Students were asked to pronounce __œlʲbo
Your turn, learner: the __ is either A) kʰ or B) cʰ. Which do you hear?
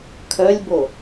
A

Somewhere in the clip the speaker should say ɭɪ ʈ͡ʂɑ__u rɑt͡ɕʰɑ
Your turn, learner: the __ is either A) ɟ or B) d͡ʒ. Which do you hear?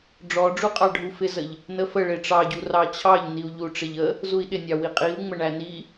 A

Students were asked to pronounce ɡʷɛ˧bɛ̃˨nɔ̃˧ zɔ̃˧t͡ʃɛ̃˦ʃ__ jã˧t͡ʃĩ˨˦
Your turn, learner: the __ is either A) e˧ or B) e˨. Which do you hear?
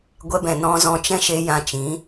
A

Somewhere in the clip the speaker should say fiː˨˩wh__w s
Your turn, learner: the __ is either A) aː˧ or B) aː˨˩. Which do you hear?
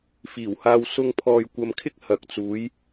A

